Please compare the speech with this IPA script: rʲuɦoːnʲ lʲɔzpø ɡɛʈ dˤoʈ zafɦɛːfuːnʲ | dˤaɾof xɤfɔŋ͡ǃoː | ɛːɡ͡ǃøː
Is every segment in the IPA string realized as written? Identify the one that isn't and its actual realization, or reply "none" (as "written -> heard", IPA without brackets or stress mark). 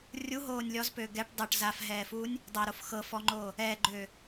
none